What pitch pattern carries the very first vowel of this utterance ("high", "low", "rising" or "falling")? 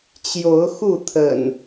rising